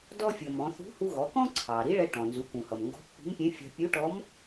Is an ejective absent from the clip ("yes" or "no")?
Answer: yes